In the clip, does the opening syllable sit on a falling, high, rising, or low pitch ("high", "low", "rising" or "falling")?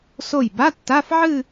falling